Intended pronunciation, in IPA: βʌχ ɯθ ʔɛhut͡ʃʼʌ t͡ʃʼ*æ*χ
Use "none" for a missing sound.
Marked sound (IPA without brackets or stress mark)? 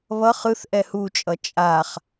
a